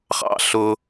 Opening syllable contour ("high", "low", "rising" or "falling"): high